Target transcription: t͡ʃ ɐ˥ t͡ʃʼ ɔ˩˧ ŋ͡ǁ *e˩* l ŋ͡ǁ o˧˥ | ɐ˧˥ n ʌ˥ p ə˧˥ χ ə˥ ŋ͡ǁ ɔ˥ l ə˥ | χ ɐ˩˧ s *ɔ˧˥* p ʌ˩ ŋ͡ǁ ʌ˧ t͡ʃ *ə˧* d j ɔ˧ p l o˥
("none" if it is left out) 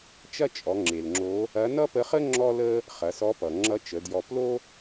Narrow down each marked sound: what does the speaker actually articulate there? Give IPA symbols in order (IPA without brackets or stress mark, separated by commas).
e˩, ɔ˧˥, ə˩˧